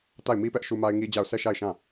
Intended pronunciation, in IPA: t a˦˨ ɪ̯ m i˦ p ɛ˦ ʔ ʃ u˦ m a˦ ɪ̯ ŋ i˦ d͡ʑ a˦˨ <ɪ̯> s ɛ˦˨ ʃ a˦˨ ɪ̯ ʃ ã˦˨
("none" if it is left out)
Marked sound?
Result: ʊ̯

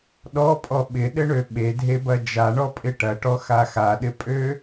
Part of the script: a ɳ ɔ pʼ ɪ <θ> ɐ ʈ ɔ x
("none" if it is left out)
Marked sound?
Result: ʈ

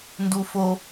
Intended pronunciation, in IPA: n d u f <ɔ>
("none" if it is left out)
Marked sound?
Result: o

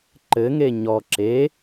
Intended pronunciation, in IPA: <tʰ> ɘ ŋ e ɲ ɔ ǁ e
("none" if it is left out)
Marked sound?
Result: ǃ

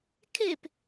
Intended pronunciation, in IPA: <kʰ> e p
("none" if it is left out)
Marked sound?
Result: kʰ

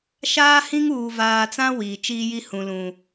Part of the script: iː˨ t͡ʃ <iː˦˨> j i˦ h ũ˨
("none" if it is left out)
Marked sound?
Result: iː˦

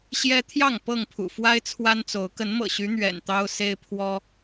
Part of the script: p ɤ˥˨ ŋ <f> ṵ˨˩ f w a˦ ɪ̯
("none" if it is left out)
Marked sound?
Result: pʰ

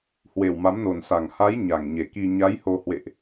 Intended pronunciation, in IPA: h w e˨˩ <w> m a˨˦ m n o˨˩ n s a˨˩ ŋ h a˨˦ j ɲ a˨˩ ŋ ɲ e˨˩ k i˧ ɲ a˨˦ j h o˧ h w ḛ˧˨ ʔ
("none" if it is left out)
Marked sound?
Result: w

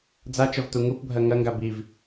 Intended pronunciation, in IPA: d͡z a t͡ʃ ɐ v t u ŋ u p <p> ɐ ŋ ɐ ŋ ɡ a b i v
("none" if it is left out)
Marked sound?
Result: bʱ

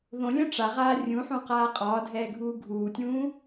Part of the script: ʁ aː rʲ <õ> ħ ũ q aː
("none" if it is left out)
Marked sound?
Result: ũ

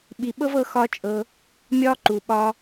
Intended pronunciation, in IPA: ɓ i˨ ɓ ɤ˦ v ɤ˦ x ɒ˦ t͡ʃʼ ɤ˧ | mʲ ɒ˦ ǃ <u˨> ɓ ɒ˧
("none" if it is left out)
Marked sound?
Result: u˨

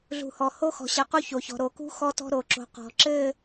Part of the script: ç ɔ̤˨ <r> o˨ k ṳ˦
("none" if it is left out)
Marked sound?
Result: ɾ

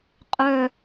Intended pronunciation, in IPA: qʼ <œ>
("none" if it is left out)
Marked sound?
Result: œ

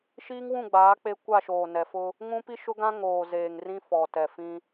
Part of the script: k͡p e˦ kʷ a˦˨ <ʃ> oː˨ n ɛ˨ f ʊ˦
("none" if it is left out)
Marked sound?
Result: ʃ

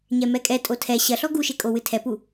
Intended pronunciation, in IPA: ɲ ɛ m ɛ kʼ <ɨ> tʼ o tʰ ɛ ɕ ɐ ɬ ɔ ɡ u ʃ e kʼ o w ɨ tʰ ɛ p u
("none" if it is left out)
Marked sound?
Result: ɛ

